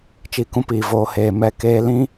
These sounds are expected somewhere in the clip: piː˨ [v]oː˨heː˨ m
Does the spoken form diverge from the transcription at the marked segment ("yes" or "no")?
no